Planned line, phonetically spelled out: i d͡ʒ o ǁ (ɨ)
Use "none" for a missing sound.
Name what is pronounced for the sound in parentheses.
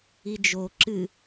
ɨ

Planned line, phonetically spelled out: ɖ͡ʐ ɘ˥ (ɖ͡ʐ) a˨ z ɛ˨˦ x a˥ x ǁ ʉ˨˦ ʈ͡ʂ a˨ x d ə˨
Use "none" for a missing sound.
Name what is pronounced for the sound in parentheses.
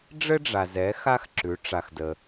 ɖ͡ʐ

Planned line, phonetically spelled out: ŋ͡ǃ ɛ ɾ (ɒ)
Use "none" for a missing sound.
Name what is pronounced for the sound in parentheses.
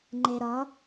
ɒ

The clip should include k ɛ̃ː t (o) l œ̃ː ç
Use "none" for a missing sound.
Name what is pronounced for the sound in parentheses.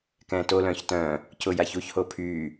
o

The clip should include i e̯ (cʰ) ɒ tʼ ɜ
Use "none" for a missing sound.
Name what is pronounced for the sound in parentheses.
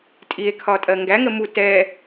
kʰ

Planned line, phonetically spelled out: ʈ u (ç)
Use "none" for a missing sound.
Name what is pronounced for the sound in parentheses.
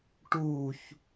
ç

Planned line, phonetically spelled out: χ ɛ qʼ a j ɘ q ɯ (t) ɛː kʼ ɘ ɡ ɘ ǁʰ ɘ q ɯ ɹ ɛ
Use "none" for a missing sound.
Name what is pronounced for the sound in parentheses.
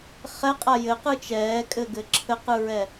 t͡ʃ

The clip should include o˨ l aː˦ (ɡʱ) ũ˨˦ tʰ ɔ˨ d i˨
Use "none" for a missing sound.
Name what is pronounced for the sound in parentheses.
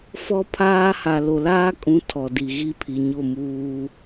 kʼ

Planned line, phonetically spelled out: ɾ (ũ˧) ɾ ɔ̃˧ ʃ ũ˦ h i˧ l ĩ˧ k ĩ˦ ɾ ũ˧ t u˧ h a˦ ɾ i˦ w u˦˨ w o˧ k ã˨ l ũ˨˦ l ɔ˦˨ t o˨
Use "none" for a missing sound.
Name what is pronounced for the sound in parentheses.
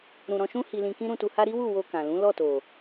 ũ˧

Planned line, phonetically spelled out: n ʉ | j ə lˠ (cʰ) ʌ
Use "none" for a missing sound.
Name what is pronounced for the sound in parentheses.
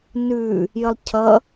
cʰ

